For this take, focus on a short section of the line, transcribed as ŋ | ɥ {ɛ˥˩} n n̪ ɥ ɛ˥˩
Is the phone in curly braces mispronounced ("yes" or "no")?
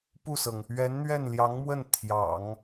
yes